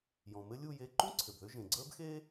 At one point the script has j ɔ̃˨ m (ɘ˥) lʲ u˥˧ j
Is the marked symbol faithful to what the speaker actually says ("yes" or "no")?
yes